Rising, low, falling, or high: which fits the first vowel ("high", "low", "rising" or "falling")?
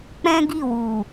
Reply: high